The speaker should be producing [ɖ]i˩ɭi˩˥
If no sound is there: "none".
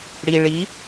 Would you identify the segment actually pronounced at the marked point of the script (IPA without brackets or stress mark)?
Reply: ɽ